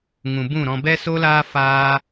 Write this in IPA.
ŋũ˨bũ˦˨ɾɔ̃˧ bɛ˦so˦laː˦ faː˦

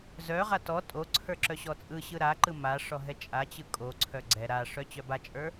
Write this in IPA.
zœʁa tɔ tʼoǀʰə˞ ǁœɕɔt͡sʼɯɕɯ ɾaǃɯ maʂɔ ɦɛt͡ʃʼat͡ɕɯ kʼoǀʰœ ɡ͡ǀɛ ɾaʂœ t͡ɕœbat͡ʃʼə˞

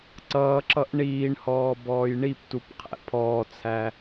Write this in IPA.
ǀʌːǁʌʔ ɳiːɳhɔː bɔːjɳiptup qʰæ̰pʰɔːt͡sʰæ

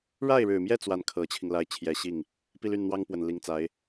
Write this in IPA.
ɻa˥˩ɪ̯ɻɻ̩˨˩mjɛ˥˧ t͡swa˥˩nkʰɤ˧˥t͡ɕʰi˧ŋla˥˩ɪ̯ t͡ɕʰjɛ˧˥ɕi˥˩ŋ | pi˥˧ly˥˩n n̪wɑ˥ŋpwə˨˩nli˧˥ŋ t͡sa˧˥ɪ̯

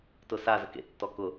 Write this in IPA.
tʊsazə kḛtːɔ kʊ

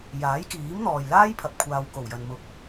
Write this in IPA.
jaː˨˥jkiː˨˥m n̪ɔː˨jlaː˥jpʰɐ˨p̚kʷʰaː˨w ko˨˩wjɐ˨nmʊ˨˥k̚

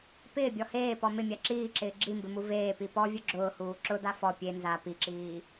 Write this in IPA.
pɪːbʲɔ heːpɔ mɪmʲa ǁiːǁɪː ɡ͡ǁimbɪmu veːpi pɔvʲʊ ɡ͡ǁʊːhuː ǁʊda fɔ pʲe nza piǁiː

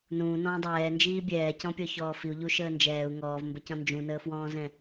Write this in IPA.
nũːnɔ̃ː dˤɛːnd͡ʒiː bʲɛːcɔ̃pʲɔçɔː fiu̯ʎuʃəː nd͡ʒɛːu̯ ŋɔːvmbəcɔ̃ nd͡ʒũnəːfwɔ̃ːzɛ̃

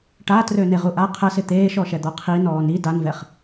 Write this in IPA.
ʈatrø neʁuʔa qʰəsɪ t̪eːʃɔʃɛ d̪ɔqʰi nɔːni danvɛχ

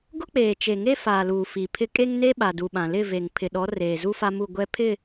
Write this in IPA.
ɡʊ˦k͡peː˨t͡ʃe˨ŋe˦ faː˨luː˨ fi˨pʰɪ˦ kʼe˦ŋne˦ ɓa˨du˨ɓã˨ lɪ˦˨ve˨ŋ pʰɪ˨ɗɔ˨˦ reː˨zu˦fa˦mu˦˨ ɡʷɛ˦pʰɪ˦˨

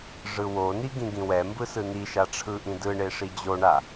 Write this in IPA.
ʐɯwoni ɡĩɡĩwɛmbɯ sɯniʃa ʈ͡ʂʰɯʔĩdɯɳe ʂid͡ʑoɳa

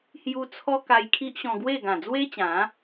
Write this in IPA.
hju˧t͡sʰɔ˦ ka˧jkʰi˦ʔɕɔ̃˧ɡwe˥˧ ɡã˨˩d͡zwe˦t͡ɕã˨˦

